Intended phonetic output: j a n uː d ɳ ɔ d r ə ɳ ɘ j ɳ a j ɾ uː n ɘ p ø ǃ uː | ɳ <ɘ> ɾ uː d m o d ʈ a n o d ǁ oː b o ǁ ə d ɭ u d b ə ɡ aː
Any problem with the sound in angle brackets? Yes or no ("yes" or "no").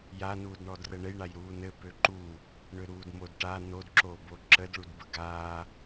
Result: yes